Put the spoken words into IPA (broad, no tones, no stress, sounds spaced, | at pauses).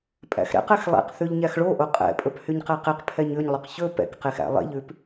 pʼ æ̰ x ɾ ɛ̰ q ɛ x lˠ ḛ q θ ʉ ʎ ɲ æ x ɭ o ʔ o qʼ ɛ̰ pʼ ɵ p h y ɲ q æ q e q pʰ ɛ ɲ ʉ ɲ lˠ ɵ q ç ɵ p ɛ̰ k q e x æ̰ lˠ ḛ ʎ ʉ p